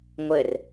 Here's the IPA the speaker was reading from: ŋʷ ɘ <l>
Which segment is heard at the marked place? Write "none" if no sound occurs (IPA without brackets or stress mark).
r